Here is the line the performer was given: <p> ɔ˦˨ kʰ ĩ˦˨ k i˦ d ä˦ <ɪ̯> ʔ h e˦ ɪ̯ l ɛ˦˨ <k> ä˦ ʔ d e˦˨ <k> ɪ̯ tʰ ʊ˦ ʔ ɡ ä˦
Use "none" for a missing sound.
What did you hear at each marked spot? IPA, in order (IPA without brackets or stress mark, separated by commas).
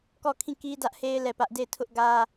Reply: k, none, p, none